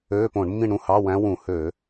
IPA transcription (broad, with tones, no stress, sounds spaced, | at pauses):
øː˧˥˧ p õ˧˩˧ ɳ mː ĩ˥˨ ɳ ɾ ũ˥˨ h ɑ˧˥˧ w æ̃˧˥ w ũ˧˩˧ h ø˧˩˧